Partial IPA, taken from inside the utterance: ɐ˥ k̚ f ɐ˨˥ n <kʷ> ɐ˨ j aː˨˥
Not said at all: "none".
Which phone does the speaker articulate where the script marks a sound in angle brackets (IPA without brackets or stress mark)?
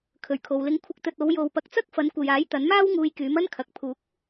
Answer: kʷ